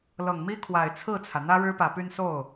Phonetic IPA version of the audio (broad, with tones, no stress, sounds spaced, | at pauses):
l ɤ˨˩ ŋ m i˥ kʰ w a˨˩ ɪ̯ t͡sʰ ɹ̩˥˩ t͡sʰ ä˩ n̪ ä˥ ɻ ɻ̩˥ p ä˨˩ p y˥˧ n s o˥˩ ʊ̯